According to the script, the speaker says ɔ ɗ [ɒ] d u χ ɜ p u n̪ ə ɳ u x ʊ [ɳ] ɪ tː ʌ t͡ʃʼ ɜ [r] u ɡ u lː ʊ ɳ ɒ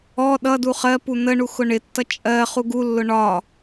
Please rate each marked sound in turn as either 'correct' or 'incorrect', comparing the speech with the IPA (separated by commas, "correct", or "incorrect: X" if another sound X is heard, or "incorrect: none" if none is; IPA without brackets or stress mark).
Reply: incorrect: ʌ, correct, incorrect: χ